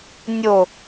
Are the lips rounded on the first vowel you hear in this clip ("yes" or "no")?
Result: yes